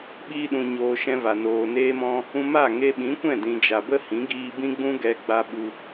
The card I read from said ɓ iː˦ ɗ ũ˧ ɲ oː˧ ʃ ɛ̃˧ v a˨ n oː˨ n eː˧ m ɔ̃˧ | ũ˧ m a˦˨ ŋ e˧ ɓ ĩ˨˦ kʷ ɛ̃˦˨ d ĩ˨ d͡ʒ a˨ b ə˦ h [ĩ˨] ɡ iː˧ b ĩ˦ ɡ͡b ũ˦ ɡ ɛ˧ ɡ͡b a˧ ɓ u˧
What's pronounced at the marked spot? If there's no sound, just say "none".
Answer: ĩ˨˦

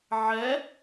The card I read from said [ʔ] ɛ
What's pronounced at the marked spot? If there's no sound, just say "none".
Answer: ʕ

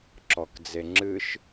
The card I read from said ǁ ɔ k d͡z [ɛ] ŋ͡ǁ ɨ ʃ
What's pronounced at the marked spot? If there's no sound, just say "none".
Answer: e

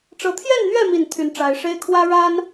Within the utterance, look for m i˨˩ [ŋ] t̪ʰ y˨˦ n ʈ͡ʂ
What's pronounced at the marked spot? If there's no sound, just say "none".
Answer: n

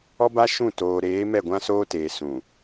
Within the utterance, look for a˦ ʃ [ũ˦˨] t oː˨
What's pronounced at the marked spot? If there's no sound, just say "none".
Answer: ũ˦˨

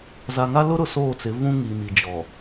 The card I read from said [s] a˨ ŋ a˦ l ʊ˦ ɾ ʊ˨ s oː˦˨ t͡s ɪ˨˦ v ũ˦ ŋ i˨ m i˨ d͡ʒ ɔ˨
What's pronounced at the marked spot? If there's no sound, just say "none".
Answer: z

